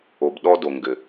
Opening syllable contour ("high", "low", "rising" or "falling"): low